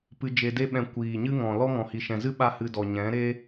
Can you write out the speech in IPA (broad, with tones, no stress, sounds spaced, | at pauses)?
p ɨ˧ d͡ʒ e˧ d e˦ ɓ ɛ̃˧ kʷ iː˨ ɲ ɨ˦ ŋ ɔ̃˨ l ɔ˦ ŋ ɔ̃˨ h i˨ ʃ ɛ̃˨ z ɨ˦ ɓ a˦ h ɨ˧ d ɔ˨ ɲ ɛ̃˨˦ ɾ e˦